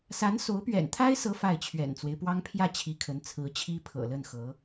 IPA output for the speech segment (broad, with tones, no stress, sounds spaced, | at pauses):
s a˧˥ n s o˧˥ ʊ̯ p ɥ ɛ̰˨˩ n t̪ʰ a˥ ɪ̯ s ɤ˥ f a˥˩ ɪ̯ t͡ɕʰ ɥ ɛ̰˨˩ n t͡s w e˦ ɪ̯ p w ɑ˥ ŋ pʰ j ä˥˩ t͡ɕʰ i˧˥ kʰ ə˧˥ n t͡sʰ ɹ̩˧˥ t͡ɕʰ i˥ pʰ ɤ̰˨˩ l ə˥˩ n x ɤ˧˥